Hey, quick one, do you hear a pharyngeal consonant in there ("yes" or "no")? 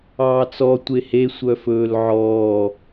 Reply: yes